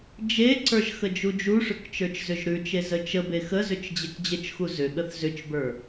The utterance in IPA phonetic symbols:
d͡ʒ e ǀ ə˞ ʒ x ə d͡ʒ u d͡ʒ u ʂ ʏ k t͡ʃ ə˞ t͡ʃ z ʏ ʒ ɾ ʉ t͡ʃ e z ə t͡ʃ ə b e x ə z ʏ t͡ʃ d͡ʑ e k d͡ʑ ə t͡ʃ x u z ʏ ɠ ə θ z ʏ t͡ʃ b ə˞

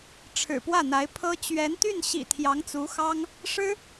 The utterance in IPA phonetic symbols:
ʈ͡ʂʰ ɻ̩˨˩ p w ä˥˩ n̪ a˧˥ ɪ̯ pʰ ɤ˥ t͡ɕ ɥ ɛ˧˥ n t̪ y˥˩ n ɕ ḭ˨˩ t̪ʰ j ɑ˧˥ ŋ t͡s u˧˥ x ɑ˥ ŋ | ʂ ɻ̩˥

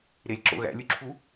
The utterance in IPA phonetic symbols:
ɾ e lʲ ǁ o̰ ɣ æ̰ lʲ u ǁʰ u

